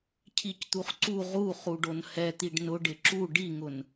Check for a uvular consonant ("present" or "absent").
present